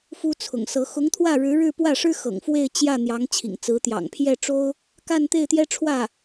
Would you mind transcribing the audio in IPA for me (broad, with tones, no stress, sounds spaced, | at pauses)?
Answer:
f u˥ t͡sʰ ʊ̰˨˩ ŋ s ɤ˧˥ x ʊ˧˥ ŋ t̪ʰ w ä˥˩ ɻ ɻ̩˧˥ ɻ ɻ̩˥˧ p w ä˥˩ ʂ ɻ̩˥ x ɤ̰˨˩ ŋ f w e˥˧ ɪ̯ t͡ɕ j ä˥˩ n̪ j ɑ˧˥ ŋ t͡ɕʰ ḭ˨˩ ŋ t͡s ɹ̩˧˥ t̪ j ɑ̰˨˩ ŋ pʰ j ɛ˥˩ ʈ͡ʂ o˥ ʊ̯ | k a˥˧ n t̪ e˥˩ ɪ̯ t̪ j ɛ˥ ʈ͡ʂʰ w ä˥˩